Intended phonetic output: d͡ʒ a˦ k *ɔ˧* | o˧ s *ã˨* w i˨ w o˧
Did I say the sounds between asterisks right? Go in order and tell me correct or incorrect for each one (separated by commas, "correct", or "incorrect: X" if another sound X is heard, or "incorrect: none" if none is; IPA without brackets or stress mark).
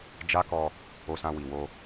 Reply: correct, incorrect: ã˧